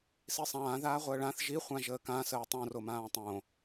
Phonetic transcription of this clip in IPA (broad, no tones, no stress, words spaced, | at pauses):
sisˤãː ðaːʁʷəːɭãθ ʒi χʷãʒəːkã səːtˤõ romãːtˤõ